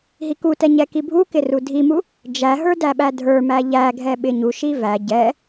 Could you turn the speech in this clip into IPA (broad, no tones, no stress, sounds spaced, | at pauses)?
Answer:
ɦ i k u t ɛ ɲ ɛ k i bʱ u k ɪ r u dʱ i m u | d͡ʒ æ ɦ ə˞ d æ ɓ æ dʱ ə˞ m æ ʎ æ ɡʱ ɛ ɓ ɪ ɲ u ʃ i v æ ɟ ɛ